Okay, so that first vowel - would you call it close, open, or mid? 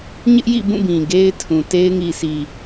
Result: close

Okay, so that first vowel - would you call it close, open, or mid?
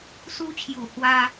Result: close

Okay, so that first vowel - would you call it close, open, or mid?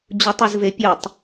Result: close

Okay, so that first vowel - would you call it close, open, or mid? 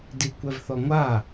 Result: close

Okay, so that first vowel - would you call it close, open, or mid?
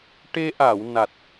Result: mid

